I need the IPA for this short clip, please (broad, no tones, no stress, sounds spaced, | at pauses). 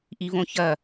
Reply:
ʔ i v õ ç ɐ